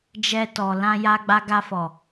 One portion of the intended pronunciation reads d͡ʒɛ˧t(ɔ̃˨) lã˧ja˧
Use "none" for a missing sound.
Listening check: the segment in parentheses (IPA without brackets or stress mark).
ɔ˨